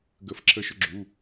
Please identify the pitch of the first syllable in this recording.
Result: falling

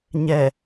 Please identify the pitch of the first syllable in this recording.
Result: low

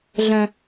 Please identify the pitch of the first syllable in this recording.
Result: high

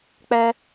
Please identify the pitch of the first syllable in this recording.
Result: high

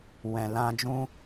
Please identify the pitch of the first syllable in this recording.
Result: low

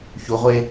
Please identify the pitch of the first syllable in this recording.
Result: rising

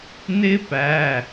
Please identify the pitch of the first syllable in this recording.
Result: high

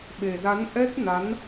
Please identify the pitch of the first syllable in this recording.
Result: low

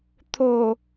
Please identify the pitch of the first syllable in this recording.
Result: low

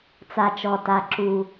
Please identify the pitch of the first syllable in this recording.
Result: low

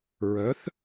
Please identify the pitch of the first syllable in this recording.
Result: rising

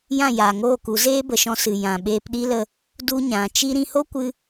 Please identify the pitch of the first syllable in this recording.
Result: falling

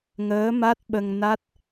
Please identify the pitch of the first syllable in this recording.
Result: rising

